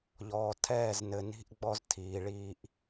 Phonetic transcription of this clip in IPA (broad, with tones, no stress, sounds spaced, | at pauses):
ʎ ɔː˨ tʰ ɛː˦˨ z n ɘ˨ n i̤˦ ʔ ɡ͡b ɔ˦ z tʰ iː˨ ɭ iː˦ ʔ